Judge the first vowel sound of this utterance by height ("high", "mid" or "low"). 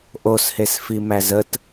mid